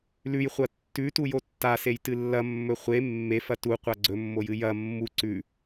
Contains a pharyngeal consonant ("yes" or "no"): no